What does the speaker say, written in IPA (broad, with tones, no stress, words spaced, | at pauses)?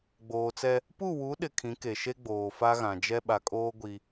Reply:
ɡ͡boː˨t͡sɛ˦ | pu˦˨wu˨˦ɗɪ˨ kʰĩ˨˦ke˨ ʃe˦ɡ͡boː˨fa˦ɣã˨ d͡ʒɛ˦ ɓa˨kʼoː˦ ɡʷi˦